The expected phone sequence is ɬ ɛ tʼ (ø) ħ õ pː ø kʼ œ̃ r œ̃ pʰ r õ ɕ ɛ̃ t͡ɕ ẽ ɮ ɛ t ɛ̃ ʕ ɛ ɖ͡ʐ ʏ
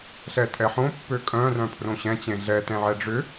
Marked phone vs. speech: incorrect: ɛ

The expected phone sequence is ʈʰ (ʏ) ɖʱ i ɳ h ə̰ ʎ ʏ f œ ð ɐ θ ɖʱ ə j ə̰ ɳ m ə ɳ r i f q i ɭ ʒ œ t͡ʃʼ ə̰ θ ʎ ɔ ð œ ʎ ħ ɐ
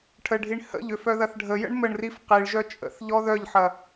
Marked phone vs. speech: incorrect: ə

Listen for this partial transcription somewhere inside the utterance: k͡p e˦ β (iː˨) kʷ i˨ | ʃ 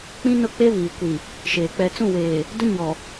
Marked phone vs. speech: correct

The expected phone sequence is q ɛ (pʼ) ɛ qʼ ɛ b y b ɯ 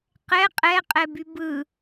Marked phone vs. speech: incorrect: qʼ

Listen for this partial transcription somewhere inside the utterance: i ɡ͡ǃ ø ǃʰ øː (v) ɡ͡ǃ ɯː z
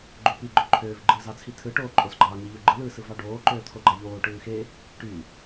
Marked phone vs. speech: correct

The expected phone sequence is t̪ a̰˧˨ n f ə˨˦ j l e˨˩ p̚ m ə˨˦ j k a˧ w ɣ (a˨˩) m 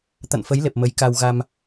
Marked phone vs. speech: incorrect: a˧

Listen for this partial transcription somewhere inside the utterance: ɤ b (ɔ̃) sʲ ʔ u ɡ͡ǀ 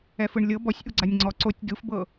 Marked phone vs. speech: incorrect: ɔ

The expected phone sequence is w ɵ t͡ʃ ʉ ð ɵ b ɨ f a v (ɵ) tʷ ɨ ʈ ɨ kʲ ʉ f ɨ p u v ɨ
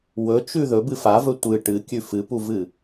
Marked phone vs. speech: correct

